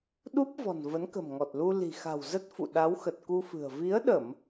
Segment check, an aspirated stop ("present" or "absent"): absent